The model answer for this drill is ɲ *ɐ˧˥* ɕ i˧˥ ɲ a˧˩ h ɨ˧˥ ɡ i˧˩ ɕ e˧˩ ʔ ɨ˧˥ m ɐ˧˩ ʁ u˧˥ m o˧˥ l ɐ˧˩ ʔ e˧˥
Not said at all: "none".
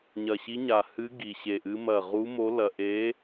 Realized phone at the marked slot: ɐ˧˩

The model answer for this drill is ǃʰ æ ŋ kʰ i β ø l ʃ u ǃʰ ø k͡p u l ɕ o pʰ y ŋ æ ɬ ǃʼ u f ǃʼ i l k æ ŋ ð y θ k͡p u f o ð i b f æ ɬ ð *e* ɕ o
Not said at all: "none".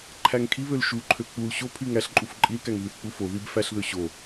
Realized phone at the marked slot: ø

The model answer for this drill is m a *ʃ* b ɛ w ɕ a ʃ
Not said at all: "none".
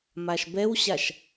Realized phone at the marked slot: ʃ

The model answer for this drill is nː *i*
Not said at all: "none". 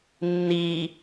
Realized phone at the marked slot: i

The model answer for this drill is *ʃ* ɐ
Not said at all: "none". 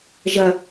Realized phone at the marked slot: ʒ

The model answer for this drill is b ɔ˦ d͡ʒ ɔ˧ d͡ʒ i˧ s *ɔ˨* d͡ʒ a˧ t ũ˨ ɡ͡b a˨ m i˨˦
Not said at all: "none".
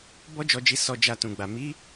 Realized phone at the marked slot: ɔ˧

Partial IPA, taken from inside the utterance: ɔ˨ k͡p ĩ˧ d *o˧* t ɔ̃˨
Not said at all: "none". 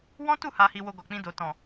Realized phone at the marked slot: o˨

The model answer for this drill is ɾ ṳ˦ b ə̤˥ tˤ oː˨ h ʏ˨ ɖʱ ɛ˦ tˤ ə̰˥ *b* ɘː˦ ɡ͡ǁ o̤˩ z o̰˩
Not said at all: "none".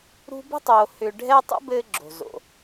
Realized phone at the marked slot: b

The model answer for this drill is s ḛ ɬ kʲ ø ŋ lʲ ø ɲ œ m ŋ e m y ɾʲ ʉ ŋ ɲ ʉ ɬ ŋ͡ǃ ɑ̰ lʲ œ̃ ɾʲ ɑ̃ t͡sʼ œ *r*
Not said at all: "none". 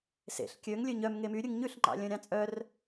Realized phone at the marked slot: r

